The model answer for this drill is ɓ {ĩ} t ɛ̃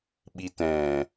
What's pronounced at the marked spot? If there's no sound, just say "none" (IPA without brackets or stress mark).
i